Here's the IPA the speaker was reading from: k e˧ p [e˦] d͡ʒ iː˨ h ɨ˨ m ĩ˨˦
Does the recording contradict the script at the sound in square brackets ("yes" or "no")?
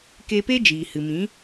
no